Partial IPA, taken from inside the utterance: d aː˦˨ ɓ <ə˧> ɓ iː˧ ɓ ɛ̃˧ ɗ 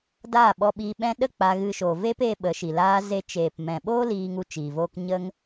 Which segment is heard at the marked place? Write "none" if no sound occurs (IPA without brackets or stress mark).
ɔ˧